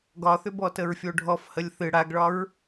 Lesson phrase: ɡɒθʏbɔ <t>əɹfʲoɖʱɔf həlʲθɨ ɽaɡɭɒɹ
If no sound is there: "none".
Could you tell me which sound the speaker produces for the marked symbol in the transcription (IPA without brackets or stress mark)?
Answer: t